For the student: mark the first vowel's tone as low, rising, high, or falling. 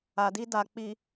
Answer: low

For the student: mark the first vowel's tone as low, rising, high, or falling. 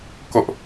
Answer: high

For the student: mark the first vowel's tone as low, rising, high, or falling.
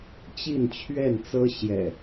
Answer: falling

